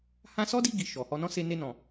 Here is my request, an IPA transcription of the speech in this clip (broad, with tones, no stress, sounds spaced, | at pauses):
h ã˧ s ɔ˦ d i˧ ɡ i˨ ʃ ɔ˨ h ɔ˧ n ɔ̃˦ s e˧ n e˧ n ɔ̃˨